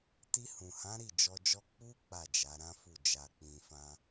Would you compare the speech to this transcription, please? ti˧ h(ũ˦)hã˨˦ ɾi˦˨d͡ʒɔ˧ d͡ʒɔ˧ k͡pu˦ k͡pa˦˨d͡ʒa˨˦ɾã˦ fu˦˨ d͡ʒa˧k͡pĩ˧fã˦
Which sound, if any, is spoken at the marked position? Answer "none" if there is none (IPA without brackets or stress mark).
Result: ũ˨